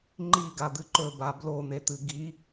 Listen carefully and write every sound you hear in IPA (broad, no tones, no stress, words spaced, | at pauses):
ŋ͡ǃiɡad̪ɨ ǃɵba blon̪et̪ɨ ɡi